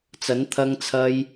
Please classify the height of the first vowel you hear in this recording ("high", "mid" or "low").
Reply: low